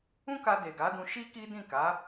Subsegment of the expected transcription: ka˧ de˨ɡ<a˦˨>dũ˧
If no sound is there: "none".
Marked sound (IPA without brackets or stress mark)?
a˨˦